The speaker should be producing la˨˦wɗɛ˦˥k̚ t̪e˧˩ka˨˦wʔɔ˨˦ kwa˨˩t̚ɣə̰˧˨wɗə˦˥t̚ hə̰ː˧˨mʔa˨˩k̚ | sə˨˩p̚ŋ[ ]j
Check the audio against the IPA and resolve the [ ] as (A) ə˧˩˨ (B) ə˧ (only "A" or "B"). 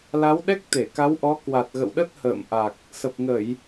A